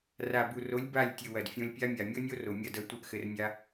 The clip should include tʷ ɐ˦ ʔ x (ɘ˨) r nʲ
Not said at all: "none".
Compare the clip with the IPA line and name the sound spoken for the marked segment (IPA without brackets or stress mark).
ɘ˧